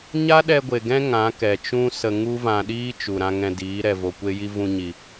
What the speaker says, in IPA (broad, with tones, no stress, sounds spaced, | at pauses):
ɲ a˦ ɗ ɛ˧ ɡʷ e˨ ɡ ɛ̃˦ ŋ ã˨˦ k ɛ˨ t͡ʃ ũ˦ s ə˧ ŋ u˦ v ã˧ ɗ iː˦ t͡ʃ u˨ ɾ ã˧ ŋ ɛ̃˧ d iː˨˦ ɾ ɛ˨ v o˨ kʷ e˧ j i˧ v ũ˧ ɲ i˨